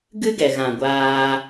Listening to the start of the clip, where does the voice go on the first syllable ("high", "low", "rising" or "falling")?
high